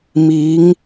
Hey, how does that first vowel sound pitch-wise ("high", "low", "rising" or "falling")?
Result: rising